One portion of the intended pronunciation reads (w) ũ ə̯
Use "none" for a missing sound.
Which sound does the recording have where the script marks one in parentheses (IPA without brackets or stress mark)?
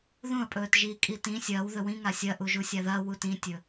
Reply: ð